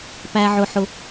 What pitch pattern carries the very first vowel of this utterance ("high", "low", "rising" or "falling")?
high